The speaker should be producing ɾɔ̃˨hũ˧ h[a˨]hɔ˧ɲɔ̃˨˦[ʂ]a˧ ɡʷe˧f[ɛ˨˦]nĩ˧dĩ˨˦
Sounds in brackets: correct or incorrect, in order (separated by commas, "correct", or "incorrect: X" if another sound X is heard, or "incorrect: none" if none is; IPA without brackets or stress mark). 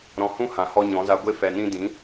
incorrect: ã˨, incorrect: z, incorrect: ɛ˨